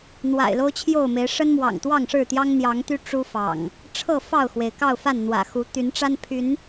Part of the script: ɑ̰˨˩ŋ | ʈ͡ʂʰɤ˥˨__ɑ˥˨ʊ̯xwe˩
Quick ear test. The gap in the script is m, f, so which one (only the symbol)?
f